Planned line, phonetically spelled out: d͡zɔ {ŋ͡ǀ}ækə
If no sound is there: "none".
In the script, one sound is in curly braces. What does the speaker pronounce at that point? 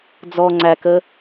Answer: ŋ͡ǀ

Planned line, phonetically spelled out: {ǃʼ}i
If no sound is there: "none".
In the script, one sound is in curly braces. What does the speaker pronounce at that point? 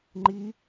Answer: ŋ͡ǃ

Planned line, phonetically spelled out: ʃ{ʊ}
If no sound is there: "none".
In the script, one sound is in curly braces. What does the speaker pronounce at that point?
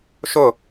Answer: ʊ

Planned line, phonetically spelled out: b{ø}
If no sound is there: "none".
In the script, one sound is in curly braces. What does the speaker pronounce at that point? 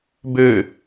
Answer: ø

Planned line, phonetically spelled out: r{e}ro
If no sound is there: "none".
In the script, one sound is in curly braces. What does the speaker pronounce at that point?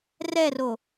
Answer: ɛ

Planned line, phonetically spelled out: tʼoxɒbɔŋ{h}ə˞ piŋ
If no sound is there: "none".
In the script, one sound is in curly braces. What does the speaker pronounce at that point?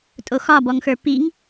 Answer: x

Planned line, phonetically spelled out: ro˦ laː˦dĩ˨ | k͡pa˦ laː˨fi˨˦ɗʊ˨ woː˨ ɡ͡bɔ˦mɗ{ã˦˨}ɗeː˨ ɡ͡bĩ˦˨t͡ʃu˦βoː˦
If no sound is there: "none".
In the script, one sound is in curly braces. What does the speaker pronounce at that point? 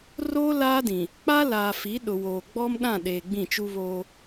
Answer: ã˦˨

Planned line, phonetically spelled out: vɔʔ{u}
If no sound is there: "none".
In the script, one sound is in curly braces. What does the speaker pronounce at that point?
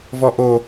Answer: o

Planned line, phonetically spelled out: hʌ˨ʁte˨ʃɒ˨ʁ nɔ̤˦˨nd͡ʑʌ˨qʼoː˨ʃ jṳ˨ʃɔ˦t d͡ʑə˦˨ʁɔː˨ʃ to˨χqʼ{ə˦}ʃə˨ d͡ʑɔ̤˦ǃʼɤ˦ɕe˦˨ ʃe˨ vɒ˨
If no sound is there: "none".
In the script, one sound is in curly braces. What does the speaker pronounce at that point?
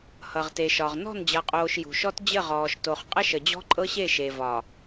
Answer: ə˦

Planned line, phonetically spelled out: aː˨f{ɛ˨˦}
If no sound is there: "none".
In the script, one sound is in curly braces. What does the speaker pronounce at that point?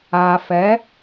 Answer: ɛ˨˦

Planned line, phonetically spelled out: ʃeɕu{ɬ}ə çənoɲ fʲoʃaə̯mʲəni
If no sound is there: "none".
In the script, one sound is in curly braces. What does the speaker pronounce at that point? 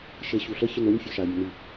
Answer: ɬ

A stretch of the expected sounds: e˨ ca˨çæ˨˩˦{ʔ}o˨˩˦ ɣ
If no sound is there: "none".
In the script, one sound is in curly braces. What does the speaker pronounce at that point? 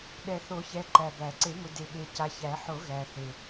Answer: ħ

